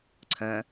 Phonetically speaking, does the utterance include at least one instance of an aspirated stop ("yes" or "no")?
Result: yes